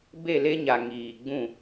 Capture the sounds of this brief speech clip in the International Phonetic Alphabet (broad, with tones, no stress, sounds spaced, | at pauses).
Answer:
b e˦˨ l e˦ ɲ a˨ ŋ iː˨ ɡ͡b ũ˦˨